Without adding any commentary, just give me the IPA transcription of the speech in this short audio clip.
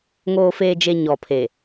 ŋ oː˨ f eː˨ d͡ʒ e˨ ɲ ɔ˨ pʰ e˨

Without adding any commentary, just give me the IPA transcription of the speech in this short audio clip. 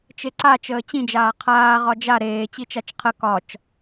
t͡ʃ e ǀ a t͡ʃ əː t͡ɕ ĩ d͡ʒ aː qʰ aː ʁ ɒ d͡ʒ a ɾ eː t͡ɕ i t͡ʃ a t͡ʃ qʰ ə k ɒ t͡ʃ

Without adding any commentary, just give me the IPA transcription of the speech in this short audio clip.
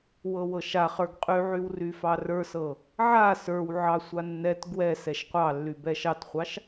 w ɤ w ɤ ʃ a χ ə˞ ɡ qʼ y ʕ y w r y f ɑ r ə˞ s ɤ | ʕ a s ə˞ w ʕ ɑ sʷ a nː ɛ t ɡ w ɛ s ɛ ʃ qʷ ɑ lː y b ɛ ʃ ɑ t χʷ ɑ ʃ

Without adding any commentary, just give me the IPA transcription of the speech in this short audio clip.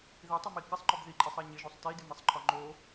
ð i tˤ a m i k ɪ sˤ ŋ͡ǃ ɔ b ð i ǃʼ i sˤ a ɲ ɪ ʒ u sˤ t i d ɪ m ɪ sˤ ǃʰ ɔ ŋ͡ǃ o

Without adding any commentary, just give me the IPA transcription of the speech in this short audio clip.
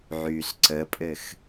ʕ yː s ǀ ə pʼ ɘ x

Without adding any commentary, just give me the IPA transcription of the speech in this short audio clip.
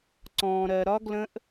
ǀ ɔ̃ː˨ ɾ ɜ˨ ɾ ɒ˦ ɡ l ə̃˦ ʔ

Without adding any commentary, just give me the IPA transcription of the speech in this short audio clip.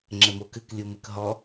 ŋ͡ǁ ɘ m o k ɨ k lʲ u m ɨ k ɦ ɔ

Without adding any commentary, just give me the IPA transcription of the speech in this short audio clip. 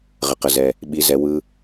ʁ ə˩ q ə˩ z ɛ˩ | ɓ i˩ z ɛ˩ w ɯ˩

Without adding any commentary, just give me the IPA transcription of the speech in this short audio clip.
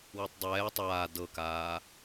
w i tˤ dˤ ɛː tˤ aː d ɤ k aː

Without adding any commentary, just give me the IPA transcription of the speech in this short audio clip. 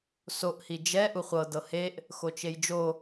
s o ʔ h i d͡ʒ ɛ ʔ u χʷ ɤ d ɤ h e ʔ | x o t͡ʃ e j d͡ʒ o

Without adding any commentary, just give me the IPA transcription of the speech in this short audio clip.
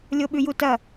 lʲ o ɓ ʉ j u t ɐ

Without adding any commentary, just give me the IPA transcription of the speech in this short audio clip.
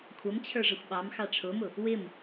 kʷʰ ʌ m t͡ɕʰ ə˞ ʐ ə xʷ ɓ ɑ m x ɑ ʈ͡ʂʰ ʊ m ʊ | w ɪ m

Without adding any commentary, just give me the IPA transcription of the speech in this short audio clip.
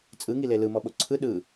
t͡sʼ ɯ ŋ i l e l ɯ m ɔ ɓ o ǀʰ ɯ ɗ ɯ

